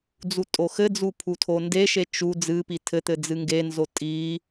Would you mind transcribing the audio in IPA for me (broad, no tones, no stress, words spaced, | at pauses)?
d͡zutʼoxɘd͡zu pʰutʰondeʃe t͡ʃu d͡zɨpi tʰɘt̪ɘ d͡zɨŋɡenzo tʼi